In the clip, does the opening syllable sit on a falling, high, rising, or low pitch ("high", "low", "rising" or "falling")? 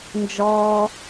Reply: low